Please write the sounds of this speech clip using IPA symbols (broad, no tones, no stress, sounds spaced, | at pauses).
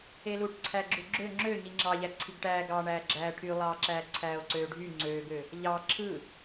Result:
e l u ʈ ǀʰ æ ɡ͡ǁ u ɡ͡ǁ ø ŋ͡ǁ ø ɲ i ŋ͡ǁ ɑ ʎ æ ǀʰ i ɡ ʈ æː ɡ ɑ ɳ æː ɡ͡ǁ æː ʈʰ y lˠ ɑː ǁ æː ǀʰ æː o̯ ǀ øː ɖʱ y ŋ͡ǀ øː ɡ ø | ʎ ɑ ǁʰ ɯ